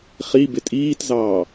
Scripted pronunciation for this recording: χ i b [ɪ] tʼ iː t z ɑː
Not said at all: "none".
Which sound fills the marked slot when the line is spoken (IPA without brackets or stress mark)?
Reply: ɪ